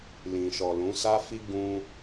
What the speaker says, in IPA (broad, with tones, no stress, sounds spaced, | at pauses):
l ĩ˨ ʃ ɔ˨ l ũ˨˦ s a˦ f i˦ ɡ ũ˧